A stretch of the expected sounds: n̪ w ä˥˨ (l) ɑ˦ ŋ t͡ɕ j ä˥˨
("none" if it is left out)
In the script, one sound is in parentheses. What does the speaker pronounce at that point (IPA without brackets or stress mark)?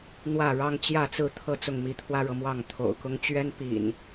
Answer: ɻ